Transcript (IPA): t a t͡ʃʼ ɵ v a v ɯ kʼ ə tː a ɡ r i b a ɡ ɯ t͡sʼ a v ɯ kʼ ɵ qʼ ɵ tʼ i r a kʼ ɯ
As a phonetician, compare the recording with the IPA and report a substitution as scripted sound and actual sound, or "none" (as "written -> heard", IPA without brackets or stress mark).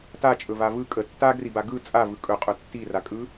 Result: tʼ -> tː